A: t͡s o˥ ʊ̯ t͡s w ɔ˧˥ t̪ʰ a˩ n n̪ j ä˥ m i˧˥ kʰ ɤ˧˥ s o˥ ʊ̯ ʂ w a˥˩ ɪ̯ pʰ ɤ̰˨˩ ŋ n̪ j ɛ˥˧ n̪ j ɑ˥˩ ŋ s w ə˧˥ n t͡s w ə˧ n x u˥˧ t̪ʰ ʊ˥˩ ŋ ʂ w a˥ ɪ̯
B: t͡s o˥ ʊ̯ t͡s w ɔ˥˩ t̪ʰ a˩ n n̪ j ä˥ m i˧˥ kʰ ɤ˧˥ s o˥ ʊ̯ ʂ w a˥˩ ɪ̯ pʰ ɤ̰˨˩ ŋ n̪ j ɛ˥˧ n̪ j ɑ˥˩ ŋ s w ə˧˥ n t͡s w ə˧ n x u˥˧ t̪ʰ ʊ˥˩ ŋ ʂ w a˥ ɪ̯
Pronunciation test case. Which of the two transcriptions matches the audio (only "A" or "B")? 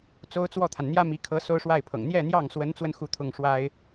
B